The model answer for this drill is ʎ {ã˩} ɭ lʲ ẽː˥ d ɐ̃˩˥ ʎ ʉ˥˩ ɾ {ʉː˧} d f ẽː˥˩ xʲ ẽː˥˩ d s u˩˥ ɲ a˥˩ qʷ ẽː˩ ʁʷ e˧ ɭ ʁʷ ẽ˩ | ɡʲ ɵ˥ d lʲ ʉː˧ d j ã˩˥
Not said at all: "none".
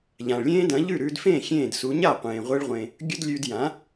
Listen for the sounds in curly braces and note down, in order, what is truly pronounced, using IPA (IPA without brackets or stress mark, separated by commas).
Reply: ã˩, ʉː˧